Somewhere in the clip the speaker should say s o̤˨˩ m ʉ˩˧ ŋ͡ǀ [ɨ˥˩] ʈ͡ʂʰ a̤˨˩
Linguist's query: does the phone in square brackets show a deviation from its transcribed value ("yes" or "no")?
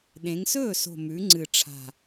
yes